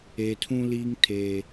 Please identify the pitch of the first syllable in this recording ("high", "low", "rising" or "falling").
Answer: low